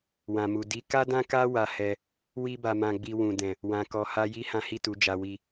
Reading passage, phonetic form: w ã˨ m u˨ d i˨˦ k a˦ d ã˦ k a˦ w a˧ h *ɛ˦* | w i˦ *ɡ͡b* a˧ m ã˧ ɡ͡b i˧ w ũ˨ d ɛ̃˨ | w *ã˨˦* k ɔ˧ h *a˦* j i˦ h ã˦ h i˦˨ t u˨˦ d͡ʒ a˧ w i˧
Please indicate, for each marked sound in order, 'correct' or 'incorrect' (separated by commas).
incorrect, incorrect, incorrect, correct